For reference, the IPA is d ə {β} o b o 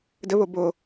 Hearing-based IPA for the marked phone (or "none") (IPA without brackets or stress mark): β